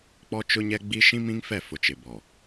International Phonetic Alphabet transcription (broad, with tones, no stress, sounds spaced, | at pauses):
k͡p ɔ˦ t͡ʃ ʊ˦ ɲ ɛ˦ ɡ͡b i˦ ʃ ĩ˦ m ĩ˦ ŋ f ɛ˦˨ f ʊ˨ t͡ʃ ɪ˨ b ɔ˨